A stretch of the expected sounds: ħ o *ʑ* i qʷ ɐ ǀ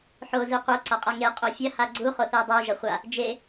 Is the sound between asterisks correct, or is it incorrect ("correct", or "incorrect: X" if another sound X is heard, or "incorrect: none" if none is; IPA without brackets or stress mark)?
incorrect: z